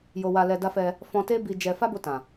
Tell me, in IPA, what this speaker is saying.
j o˧ w a˧ l ɛ˧ d a˦ f ɛ˧ | f ɔ̃˧ t e˦ b i˧ d͡ʒ ɛ˧ f a˦ b o˧ t ã˨

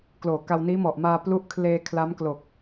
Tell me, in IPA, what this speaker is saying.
k l oː˨˩ k a˧ w n iː˦˥ m ɔ˨˩ ʔ m aː˧ p l u˦˥ ʔ kʰ l eː˧ kʰ l a˦˥ m k l o˨˩ k̚

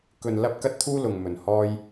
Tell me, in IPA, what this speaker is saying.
k ɵ˧ n l ɐ˥ p̚ k ɐ˥ t̚ t̪ʰ uː˥ l ʊ˨ ŋ m ɵ˨ n h ɔː˥ j

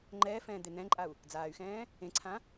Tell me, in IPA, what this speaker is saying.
ŋ͡ǃ ɛː f ɛ̃ː d̪ e n̪ ɛ̃ ǃʼ a u̯ | d͡z aː y̯ x ɛ̃ː | ẽ ǀʰ ã

